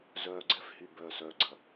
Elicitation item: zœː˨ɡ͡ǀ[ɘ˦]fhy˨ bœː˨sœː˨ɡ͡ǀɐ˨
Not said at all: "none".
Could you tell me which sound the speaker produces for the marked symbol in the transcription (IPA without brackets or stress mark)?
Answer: ɛ˦